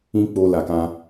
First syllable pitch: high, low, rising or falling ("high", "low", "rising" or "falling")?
high